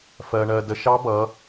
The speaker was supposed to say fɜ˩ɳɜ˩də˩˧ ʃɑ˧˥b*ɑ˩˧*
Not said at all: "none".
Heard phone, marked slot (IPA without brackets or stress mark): ʌ˩˧